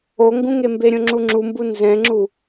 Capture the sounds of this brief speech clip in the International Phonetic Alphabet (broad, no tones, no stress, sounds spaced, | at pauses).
o ŋ ɡ ũ ŋ e m b e ɾʲ õ ŋ͡ǁ u ŋ͡ǁ u m b u n z ɛ̃ ŋ͡ǁ u